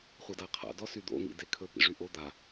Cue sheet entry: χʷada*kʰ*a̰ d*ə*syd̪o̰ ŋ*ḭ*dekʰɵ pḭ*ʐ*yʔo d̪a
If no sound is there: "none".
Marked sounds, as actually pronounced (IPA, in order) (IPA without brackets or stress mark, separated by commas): qʰ, ɔ, ḭ, ʐ